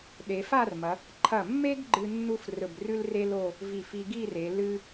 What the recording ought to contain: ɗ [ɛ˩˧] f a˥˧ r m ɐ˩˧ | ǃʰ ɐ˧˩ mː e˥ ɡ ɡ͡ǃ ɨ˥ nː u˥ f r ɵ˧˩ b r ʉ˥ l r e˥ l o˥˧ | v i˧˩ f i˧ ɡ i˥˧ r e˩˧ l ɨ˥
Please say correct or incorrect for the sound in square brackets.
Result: incorrect: e˩˧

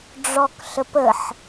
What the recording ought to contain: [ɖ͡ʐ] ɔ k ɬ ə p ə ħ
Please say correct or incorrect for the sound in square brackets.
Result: correct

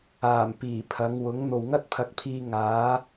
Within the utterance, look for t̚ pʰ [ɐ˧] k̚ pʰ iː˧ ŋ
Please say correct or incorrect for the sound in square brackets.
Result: incorrect: ɐ˨˥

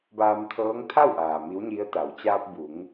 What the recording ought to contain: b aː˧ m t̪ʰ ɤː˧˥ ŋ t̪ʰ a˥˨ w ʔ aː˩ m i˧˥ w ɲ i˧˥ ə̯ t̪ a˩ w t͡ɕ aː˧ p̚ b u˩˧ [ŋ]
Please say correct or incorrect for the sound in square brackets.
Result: correct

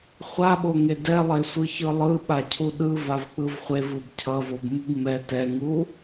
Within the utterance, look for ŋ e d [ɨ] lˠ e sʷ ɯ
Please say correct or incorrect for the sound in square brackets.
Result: incorrect: ɛ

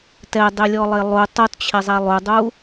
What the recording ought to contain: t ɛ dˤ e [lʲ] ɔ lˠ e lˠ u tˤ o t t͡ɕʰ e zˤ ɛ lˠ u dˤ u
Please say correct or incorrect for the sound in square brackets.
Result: correct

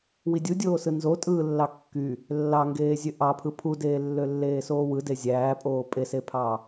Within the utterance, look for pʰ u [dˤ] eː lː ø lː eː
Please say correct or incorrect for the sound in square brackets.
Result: incorrect: d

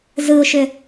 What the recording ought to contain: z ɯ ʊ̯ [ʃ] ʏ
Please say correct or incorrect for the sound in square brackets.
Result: correct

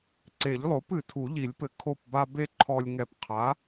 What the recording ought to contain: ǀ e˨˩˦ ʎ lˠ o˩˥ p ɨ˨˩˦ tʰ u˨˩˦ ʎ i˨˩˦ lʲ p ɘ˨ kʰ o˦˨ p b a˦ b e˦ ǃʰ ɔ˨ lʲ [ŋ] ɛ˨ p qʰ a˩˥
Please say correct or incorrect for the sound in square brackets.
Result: correct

